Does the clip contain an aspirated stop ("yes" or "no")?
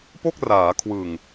yes